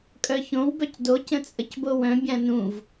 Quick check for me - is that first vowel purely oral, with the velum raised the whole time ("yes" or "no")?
yes